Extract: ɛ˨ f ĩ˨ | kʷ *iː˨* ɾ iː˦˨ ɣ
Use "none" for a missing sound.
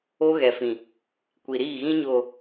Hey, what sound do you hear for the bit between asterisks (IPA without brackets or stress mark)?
i˨